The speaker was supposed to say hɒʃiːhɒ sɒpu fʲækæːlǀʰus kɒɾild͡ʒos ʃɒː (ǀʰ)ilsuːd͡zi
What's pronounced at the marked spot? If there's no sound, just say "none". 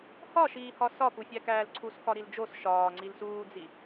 ŋ͡ǀ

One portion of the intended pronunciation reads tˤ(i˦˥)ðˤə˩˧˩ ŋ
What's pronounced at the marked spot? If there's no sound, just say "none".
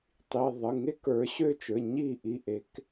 i˩˧˩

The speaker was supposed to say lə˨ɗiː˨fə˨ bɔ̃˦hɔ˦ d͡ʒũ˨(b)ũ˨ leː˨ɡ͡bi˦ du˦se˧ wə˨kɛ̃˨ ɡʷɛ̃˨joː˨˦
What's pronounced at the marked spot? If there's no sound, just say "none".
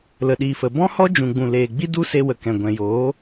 ɡ͡b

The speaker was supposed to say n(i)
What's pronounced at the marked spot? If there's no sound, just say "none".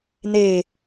e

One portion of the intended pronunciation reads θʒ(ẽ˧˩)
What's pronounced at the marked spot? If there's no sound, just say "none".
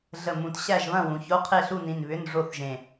ẽ˧˩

